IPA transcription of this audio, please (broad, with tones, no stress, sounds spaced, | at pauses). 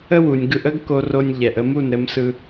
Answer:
ə˦ w u˨ nʲ ɡ ɯ˧ ʔ ə˦ ɡ k o˧ r o˧ nʲ ʎ ɛ˨ ʔ ə˧ m u˦˨ n ɾ ɘ˧ m s ɯ˧